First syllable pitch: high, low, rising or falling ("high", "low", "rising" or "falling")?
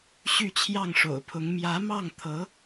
falling